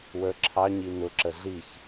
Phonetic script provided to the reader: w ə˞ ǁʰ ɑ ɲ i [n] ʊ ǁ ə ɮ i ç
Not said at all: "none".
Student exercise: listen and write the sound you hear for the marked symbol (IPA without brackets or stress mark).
n